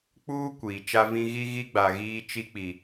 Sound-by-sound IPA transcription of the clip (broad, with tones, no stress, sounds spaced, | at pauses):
k͡p uː˦ kʷ iː˨ t͡ʃ a˦ v ĩ˦ ɣ i˦ ɣ i˦ ɡ͡b a˨ ɣ iː˦ t͡ʃ i˦ k͡p i˨